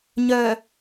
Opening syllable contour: low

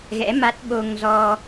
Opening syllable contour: rising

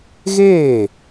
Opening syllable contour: falling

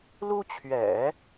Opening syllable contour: high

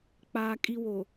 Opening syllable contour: low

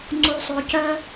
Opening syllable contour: low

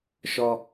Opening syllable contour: low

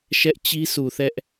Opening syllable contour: high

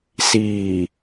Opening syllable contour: low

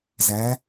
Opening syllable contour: rising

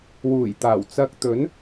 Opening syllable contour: low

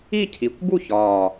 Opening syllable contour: falling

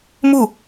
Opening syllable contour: falling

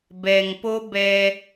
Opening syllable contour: low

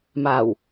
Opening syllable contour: low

